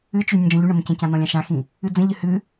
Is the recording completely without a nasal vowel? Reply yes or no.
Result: no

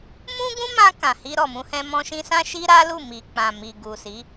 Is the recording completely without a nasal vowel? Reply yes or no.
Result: no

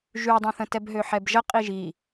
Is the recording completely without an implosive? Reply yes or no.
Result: yes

